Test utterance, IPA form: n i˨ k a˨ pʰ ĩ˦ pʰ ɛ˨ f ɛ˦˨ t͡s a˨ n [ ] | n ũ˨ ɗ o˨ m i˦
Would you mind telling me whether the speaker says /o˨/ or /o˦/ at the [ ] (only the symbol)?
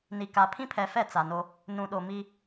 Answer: o˦